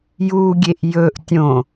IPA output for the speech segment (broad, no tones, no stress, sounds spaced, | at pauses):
j u ɡʲ e ʔ j ɵ ʔ tʲ õ